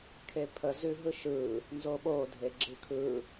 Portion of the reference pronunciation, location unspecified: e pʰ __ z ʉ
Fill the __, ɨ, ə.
ə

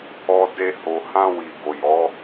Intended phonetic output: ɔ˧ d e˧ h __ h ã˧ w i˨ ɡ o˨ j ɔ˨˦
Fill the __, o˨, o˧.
o˨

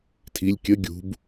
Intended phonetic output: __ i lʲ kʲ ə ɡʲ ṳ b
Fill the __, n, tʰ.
tʰ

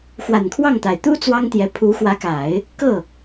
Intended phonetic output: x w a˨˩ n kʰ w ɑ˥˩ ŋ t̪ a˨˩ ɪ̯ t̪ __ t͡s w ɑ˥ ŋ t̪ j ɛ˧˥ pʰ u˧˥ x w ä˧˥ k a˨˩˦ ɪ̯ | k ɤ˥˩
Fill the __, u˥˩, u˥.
u˥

